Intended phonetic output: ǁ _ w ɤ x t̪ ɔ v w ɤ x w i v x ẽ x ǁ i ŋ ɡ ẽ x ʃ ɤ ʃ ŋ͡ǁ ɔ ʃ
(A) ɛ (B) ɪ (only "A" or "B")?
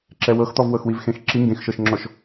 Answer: A